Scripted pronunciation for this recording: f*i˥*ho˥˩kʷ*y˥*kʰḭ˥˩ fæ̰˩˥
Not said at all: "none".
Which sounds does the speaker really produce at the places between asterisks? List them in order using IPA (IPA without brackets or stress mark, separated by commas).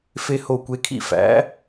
e˥, e˥